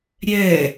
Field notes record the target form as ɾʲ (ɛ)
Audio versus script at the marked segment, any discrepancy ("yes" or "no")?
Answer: no